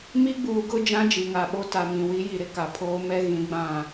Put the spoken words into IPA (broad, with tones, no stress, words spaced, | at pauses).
mi˦ɡ͡buː˨ɡʊ˦ d͡ʒã˦d͡ʒi˨ŋa˨ɓo˦ ta˨ mĩ˨ wi˨˦ji˨ɾɪ˦ ka˨pʰoː˦mɛ˦ ɣĩ˨˦ɡ͡bã˦˨